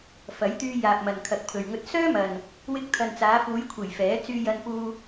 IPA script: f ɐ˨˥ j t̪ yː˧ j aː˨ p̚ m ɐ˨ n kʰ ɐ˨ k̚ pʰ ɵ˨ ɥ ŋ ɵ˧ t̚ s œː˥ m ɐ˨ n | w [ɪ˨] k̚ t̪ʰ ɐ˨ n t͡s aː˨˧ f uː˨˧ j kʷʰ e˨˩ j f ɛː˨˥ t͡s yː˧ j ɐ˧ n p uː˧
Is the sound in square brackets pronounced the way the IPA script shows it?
no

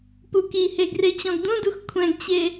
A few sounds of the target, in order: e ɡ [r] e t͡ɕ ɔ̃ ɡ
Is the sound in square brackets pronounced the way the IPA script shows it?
yes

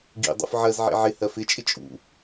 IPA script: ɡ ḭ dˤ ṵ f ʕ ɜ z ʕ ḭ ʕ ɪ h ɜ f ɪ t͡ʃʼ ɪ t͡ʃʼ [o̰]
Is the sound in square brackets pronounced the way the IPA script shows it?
no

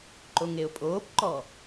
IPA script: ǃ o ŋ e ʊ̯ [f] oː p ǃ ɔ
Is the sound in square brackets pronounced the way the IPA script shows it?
no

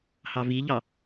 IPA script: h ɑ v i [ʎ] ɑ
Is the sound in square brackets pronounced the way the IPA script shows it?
yes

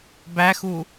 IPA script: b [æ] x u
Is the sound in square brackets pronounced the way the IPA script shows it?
yes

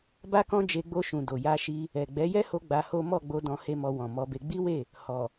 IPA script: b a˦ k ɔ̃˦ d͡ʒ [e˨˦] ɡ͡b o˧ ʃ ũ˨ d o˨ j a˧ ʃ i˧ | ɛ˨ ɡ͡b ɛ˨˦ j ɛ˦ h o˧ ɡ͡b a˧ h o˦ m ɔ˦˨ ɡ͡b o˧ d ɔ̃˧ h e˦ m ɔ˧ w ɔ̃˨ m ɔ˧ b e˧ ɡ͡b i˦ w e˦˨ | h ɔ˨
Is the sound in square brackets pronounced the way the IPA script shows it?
no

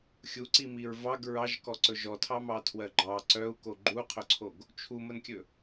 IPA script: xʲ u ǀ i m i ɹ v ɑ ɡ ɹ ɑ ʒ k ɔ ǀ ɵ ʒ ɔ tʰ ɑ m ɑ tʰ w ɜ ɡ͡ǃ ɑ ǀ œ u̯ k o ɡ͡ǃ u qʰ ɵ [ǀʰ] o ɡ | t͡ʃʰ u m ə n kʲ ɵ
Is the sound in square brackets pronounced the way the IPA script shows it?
yes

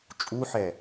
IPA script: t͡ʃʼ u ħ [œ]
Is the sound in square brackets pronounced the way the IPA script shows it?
no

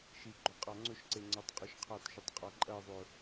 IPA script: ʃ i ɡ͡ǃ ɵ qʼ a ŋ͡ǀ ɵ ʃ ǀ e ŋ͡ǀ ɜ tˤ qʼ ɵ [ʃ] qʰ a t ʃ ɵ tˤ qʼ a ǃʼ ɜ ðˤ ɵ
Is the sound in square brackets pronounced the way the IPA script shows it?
yes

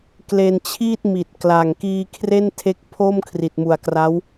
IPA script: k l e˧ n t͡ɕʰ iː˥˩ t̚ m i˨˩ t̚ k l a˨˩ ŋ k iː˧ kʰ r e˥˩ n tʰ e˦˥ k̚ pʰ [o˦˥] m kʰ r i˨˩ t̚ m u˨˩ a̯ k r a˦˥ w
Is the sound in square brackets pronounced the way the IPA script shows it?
no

